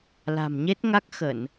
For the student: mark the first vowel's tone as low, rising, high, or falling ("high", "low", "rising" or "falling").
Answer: low